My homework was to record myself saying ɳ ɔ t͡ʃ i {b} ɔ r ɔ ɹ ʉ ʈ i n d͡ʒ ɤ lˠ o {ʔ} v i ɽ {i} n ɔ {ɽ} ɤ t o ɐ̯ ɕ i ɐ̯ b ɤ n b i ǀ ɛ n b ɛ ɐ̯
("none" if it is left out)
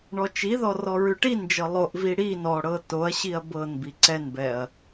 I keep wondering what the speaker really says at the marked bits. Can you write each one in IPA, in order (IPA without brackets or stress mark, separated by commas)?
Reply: ð, ʔ, i, ɽ